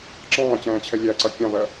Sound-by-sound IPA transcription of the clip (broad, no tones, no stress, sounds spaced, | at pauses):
ǁ ɑ̃ː t͡ɕ æ̃ː t͡ɕʰ ɛ lʲ æ ǀ ʌ kʲ ɑ̃ v ɜ